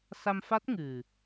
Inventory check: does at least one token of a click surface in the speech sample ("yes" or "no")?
no